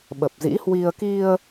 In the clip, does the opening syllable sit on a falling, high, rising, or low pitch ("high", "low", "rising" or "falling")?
low